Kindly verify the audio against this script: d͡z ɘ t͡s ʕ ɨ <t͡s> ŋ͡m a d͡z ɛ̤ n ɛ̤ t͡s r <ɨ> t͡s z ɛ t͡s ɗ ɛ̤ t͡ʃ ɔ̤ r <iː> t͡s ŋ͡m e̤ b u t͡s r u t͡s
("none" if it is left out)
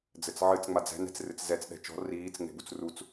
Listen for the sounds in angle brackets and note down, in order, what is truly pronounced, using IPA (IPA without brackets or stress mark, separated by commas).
t͡s, ɨ, iː